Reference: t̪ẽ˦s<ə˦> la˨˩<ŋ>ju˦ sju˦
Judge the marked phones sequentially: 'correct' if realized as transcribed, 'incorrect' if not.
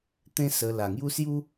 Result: incorrect, correct

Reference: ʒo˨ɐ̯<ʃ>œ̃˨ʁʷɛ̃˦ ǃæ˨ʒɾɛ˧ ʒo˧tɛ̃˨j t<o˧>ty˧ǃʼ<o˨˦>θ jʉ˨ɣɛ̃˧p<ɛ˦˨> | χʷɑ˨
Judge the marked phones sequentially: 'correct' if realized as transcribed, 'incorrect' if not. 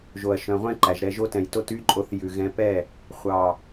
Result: correct, correct, correct, correct

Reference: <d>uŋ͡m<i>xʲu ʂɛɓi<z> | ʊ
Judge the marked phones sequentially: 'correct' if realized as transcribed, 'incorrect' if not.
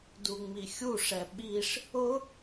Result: correct, correct, incorrect

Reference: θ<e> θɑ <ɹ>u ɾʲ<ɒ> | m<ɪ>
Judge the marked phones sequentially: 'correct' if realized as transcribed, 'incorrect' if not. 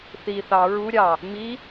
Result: incorrect, correct, incorrect, incorrect

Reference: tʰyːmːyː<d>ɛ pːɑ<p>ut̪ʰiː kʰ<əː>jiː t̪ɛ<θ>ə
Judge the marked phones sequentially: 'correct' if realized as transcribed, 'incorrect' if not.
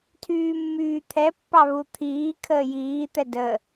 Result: incorrect, incorrect, correct, incorrect

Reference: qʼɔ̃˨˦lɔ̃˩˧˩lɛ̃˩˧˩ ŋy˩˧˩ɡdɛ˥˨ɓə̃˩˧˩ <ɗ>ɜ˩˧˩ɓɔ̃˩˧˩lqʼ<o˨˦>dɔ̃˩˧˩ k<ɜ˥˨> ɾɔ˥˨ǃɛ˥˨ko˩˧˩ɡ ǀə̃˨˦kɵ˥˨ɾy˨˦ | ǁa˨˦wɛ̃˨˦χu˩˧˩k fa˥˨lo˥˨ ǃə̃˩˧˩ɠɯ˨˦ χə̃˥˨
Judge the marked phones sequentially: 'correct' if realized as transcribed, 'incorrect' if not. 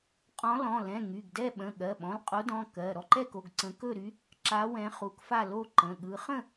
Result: incorrect, correct, incorrect

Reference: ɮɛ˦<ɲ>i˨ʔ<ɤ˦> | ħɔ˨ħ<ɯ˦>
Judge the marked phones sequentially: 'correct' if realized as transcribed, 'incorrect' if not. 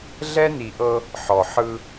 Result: incorrect, correct, correct

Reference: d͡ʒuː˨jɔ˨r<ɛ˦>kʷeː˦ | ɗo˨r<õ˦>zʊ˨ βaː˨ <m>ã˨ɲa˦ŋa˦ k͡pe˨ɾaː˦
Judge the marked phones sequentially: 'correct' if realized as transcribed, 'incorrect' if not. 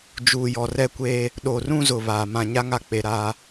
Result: correct, incorrect, correct

